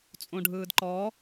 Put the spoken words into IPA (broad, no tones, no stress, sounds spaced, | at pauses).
t͡sʼ õ ɖʱ ɯː d ǃ ɔ